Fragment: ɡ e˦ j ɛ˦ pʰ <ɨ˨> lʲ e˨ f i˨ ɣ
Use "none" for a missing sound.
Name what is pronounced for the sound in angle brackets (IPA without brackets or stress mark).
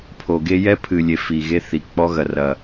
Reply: ɨ˨